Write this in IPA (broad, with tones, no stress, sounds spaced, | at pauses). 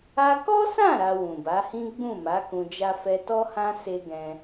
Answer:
a˧ k ɔ˦ s ã˦˨ ɾ a˧ w ũ˨ b a˨˦ h ĩ˦ ɡ͡b ũ˦˨ m a˨˦ k ũ˧ d͡ʒ a˦ f ɛ˧ t ɔ˦ h ã˦ s e˦ ɡ ɛ̃˧